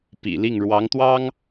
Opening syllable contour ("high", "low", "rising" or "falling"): low